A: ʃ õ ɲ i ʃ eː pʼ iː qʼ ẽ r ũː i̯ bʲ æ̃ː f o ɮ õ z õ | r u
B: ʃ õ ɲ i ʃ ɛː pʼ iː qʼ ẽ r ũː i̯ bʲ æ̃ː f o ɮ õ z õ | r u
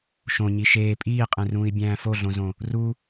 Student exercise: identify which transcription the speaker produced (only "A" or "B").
A